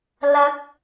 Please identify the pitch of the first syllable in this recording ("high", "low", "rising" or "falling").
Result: rising